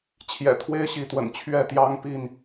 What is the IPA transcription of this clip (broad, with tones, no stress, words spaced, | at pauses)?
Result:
t͡ɕʰjɛ̰˨˩t̪ʰwe˦ɪ̯ɕi˨˦t̪wə̰˨˩n t͡ɕʰɥɛ˥˨ t̪jɑ˦ŋpi˥˨n